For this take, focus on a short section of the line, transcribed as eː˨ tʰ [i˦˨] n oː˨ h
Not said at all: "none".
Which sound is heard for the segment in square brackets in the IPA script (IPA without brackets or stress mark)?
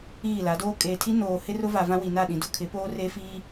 i˦